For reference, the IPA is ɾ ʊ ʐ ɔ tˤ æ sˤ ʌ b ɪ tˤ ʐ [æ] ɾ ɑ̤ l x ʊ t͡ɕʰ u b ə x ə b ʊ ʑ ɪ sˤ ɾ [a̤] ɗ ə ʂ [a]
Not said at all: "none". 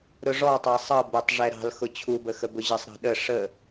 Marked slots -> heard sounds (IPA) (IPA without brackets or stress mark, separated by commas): ɛ, ɑ̤, ə